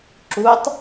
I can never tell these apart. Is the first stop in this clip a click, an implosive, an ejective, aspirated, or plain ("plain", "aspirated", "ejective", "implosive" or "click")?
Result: click